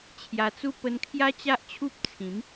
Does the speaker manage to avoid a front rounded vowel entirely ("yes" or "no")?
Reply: yes